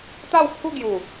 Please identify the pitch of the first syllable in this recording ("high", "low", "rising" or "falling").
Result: falling